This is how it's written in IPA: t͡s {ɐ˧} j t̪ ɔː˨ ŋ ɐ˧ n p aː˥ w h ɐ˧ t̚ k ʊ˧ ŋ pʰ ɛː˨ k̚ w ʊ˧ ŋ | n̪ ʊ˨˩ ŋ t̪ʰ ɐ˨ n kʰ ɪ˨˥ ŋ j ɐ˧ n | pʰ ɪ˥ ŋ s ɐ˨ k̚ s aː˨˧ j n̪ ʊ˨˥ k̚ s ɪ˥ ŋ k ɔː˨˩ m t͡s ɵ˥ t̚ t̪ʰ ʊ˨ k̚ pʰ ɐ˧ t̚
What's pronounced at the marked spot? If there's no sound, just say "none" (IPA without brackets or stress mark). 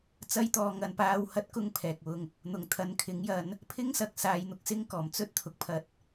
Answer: ɐ˧